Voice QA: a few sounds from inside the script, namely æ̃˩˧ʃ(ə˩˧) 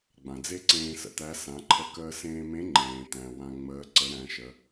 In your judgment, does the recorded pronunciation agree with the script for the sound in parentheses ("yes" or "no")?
yes